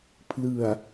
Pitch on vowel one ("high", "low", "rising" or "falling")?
low